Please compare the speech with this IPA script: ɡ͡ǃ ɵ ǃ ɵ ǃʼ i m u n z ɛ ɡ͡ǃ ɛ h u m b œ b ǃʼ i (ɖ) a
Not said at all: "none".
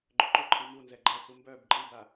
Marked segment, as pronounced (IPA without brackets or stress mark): b